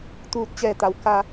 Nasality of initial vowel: oral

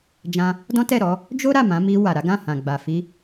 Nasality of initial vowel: nasal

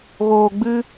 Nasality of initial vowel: oral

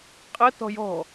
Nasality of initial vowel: oral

